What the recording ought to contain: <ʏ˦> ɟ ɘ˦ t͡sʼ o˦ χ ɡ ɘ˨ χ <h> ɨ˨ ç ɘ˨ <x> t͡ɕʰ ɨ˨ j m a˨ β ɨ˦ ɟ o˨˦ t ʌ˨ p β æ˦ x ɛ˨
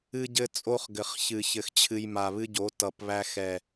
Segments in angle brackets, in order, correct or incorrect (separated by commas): incorrect, incorrect, correct